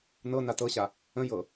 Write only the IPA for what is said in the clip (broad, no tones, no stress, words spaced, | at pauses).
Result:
nɤ natɤɕa | ə̃ jɤ